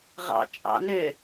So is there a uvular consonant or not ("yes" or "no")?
yes